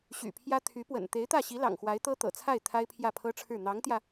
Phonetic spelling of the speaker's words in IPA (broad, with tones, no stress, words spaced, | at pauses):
ɕy̰˨˩pʰjä˥ t̪ʰy˧˥pwə̰˨˩n t̪e˧˥ɪ̯t̪ä˥˩ɕi˧˥lɑ̰˨˩ŋ xwa˧˥ɪ̯t̪ɤ˥t̪ɤ̰˨˩t͡sʰa˥˩ɪ̯ t̪ʰa˥ɪ̯pʰjä˥˩pʰɤ˥ʈ͡ʂʰɻ̩˥˩ n̪ɑ˧˥ŋt̪jä˧